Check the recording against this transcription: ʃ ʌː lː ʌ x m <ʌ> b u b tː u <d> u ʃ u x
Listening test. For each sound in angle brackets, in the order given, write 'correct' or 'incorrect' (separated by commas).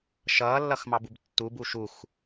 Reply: incorrect, incorrect